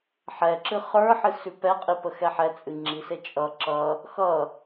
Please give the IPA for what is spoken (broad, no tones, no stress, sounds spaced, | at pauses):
ħ ɛ ǁ ɨ χ ə˞ ħ ɨ s ʉ p ɛ qʼ i p ə x ɛ ħ ɛ t͡sʼ ɨ ŋ͡ǁ i s e t͡ʃʼ ʌ ǁ ʌ | x ʌ